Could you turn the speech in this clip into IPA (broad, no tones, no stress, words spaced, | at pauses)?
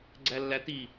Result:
ɡ͡ǀælːæti